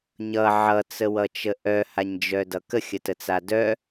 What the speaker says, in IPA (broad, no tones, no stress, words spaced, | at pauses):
ɲʌ ʕʌt͡səwʌt͡ʃə ʔœhaɲd͡ʒœdʌ kəxʲətət͡sa dœ